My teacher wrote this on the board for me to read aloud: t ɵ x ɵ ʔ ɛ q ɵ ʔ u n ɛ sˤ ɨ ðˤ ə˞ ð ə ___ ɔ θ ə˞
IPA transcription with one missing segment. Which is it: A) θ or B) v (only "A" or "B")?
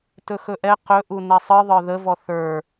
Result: B